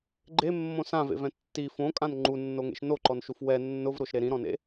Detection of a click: present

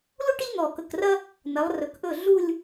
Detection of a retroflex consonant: present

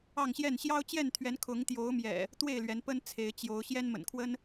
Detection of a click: absent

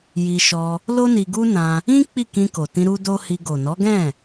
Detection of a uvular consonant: absent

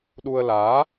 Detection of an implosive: present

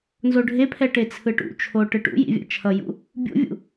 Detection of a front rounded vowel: absent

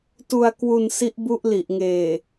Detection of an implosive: absent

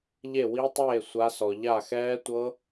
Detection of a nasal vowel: absent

